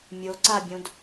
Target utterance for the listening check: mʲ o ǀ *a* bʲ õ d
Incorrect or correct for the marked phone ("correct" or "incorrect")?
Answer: correct